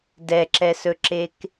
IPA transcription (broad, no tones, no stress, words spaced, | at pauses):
dɛǁɛsɵǁek